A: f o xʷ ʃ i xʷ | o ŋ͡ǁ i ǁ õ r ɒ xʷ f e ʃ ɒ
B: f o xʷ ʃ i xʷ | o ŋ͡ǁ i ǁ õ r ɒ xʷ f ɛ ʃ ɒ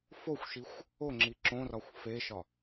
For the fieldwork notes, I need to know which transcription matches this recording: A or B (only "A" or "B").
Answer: A